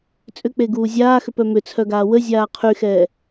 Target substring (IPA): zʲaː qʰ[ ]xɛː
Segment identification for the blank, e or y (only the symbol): y